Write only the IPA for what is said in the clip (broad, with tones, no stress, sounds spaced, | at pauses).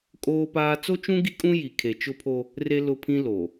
kʼ oː˦ p aː˦ t͡s o˦ t͡ʃ ũ˦ ɡ i˦ kʼ ũ˦ j i˨ kʰ e˨ t͡ʃ ʊ˦ pʰ o˦ | r e˦ l ʊ˦ pʰ ĩ˦ l o˨